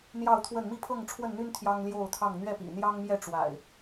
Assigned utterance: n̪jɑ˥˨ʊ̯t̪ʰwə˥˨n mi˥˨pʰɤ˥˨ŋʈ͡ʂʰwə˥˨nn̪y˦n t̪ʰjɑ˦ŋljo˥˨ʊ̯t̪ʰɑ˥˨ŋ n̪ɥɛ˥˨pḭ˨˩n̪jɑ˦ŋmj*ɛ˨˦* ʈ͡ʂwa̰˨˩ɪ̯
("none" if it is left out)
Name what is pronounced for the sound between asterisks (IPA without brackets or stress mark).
ɛ˥˨